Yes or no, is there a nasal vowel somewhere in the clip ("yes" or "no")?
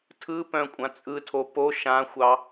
yes